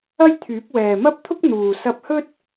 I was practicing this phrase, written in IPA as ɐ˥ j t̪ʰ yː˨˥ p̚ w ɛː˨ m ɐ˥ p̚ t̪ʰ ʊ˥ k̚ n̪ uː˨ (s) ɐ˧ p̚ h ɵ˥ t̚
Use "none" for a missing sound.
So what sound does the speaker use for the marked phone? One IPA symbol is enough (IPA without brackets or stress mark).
s